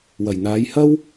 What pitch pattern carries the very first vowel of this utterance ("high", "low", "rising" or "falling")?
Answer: low